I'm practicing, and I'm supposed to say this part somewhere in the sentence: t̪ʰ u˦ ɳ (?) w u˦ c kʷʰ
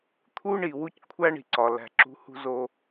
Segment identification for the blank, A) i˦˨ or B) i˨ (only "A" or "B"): B